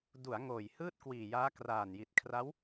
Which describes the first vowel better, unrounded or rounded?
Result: rounded